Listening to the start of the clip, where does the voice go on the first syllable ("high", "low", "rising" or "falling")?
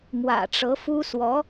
low